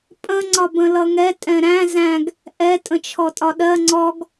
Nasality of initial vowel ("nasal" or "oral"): nasal